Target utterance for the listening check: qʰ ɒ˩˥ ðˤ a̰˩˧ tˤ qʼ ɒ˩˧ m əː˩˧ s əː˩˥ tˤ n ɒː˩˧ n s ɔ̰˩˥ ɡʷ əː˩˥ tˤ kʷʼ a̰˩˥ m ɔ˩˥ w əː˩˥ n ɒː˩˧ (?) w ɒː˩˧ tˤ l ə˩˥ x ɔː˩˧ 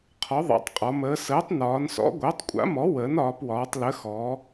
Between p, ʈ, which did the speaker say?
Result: p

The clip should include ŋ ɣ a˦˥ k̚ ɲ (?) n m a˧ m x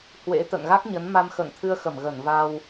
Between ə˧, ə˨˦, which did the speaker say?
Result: ə˨˦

